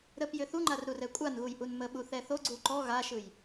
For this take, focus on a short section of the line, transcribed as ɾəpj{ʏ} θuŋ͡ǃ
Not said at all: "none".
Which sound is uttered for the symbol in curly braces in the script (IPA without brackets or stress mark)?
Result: ʏ